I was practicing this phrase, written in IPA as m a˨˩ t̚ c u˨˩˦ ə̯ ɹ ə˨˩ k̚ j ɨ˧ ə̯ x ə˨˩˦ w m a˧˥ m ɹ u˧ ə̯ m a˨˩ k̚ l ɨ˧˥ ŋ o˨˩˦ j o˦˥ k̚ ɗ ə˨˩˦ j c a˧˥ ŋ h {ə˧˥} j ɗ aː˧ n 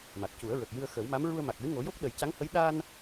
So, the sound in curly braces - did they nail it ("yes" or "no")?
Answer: yes